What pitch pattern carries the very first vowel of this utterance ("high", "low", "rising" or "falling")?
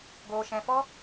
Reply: low